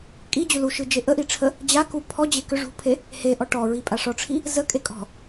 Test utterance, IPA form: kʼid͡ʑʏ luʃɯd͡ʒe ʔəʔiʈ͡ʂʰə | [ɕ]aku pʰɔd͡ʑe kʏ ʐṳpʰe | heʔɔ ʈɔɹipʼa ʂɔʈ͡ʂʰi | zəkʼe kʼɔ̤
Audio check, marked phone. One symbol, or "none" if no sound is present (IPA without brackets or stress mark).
d͡ʑ